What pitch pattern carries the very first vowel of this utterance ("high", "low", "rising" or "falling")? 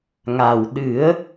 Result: low